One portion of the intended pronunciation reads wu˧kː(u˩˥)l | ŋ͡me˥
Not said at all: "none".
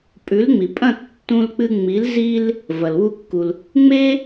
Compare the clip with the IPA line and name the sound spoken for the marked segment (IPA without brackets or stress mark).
u˩